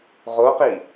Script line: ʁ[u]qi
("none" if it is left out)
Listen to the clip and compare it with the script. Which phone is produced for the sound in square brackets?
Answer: o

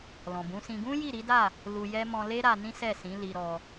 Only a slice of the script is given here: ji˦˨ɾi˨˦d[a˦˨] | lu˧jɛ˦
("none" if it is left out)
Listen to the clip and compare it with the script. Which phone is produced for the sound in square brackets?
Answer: a˦˨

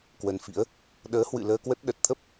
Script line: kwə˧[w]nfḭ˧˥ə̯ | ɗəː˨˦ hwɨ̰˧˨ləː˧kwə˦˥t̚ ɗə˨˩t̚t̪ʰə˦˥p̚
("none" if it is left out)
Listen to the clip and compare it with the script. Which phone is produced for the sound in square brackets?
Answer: none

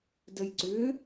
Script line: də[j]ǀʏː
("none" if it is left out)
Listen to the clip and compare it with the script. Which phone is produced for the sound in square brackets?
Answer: j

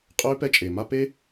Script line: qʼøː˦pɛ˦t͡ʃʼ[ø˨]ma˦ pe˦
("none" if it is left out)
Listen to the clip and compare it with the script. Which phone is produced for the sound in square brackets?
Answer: e˨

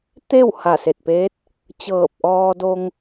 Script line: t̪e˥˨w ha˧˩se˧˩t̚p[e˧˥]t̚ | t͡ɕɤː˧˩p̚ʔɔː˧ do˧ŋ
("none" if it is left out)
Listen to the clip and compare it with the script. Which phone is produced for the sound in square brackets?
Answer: eː˧˥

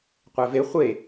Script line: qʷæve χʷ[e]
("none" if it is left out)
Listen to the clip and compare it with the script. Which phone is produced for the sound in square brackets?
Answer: e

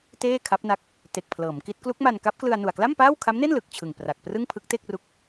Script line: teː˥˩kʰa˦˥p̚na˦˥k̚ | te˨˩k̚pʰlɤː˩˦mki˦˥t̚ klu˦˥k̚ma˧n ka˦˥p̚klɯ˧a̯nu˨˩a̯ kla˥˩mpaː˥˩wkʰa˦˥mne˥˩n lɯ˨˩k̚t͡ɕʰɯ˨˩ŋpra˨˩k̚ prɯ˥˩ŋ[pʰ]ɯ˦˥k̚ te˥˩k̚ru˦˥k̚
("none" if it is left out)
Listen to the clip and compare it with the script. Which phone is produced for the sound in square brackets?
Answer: pʰ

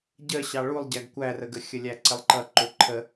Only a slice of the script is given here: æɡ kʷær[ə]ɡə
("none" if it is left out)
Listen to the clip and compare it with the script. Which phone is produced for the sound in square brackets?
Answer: ə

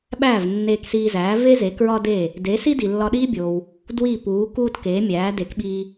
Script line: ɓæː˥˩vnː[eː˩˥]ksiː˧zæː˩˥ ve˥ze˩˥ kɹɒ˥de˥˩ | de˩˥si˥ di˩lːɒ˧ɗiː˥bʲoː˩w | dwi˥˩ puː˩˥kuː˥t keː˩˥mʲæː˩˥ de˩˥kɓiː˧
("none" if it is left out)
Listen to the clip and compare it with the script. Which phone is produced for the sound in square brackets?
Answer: eː˧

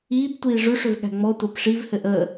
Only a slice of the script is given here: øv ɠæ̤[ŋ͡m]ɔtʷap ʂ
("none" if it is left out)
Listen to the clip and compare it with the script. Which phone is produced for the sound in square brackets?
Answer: ŋ͡m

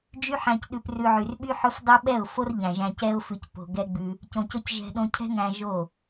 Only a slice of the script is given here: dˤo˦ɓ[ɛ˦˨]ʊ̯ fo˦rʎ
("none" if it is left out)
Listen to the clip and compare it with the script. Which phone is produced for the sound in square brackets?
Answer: ɛ˦˨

